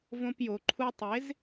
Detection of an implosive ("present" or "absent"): absent